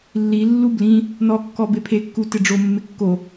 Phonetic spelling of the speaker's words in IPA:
lːi lːublĩ | nɔkːɔ bepʰekːu tɪɖ͡ʐo mːɪkːo

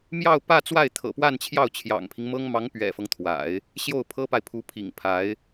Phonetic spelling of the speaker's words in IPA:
mjɑ˥˧ʊ̯pä˥˧ t͡swa˥˩ɪ̯t̪ʰɤ̰˨˩pwa˥˧nt͡ɕʰjɑ˥˩ʊ̯ t͡ɕʰjɑ̰˨˩ŋpʰi˦ŋmɤ˥ŋ mɑ˧˥ŋ pɥɛ̰˨˩fɤ˦ŋt̪ʰwa̰˨˩˦ɪ̯ | ɕjo˥˩ʊ̯pʰɤ˥pa˨ɪ̯ pʰu˧˥pʰḭ˨˩ŋpʰa˧˥ɪ̯

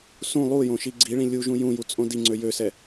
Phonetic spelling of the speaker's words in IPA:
sũ lˠujõ ʃiɡ͡ǀiɭĩ lʲuʒũ jũju t͡sʼõdiŋ͡ǀø jøsɛ

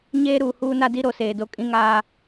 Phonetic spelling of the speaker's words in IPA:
ɲeː˦ ɾuː˨huː˦na˦di˦ ɾo˨seː˨do˦ kʼĩ˦ŋaː˦

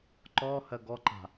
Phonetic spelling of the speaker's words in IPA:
ǃɔhɜ ɡɔǃa̤

